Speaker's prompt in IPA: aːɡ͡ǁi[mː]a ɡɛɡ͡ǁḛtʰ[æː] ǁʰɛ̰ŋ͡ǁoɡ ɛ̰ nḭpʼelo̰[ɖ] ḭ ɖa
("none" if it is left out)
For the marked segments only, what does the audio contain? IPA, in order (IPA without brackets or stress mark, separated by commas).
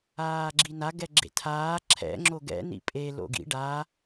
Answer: n, aː, ɡ